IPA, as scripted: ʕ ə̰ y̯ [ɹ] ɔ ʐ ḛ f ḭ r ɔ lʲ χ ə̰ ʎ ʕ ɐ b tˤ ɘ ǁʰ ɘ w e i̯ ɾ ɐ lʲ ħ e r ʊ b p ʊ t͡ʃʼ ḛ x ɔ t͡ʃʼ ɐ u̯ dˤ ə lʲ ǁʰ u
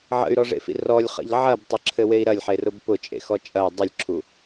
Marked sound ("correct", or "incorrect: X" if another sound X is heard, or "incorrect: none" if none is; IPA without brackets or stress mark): incorrect: ɾ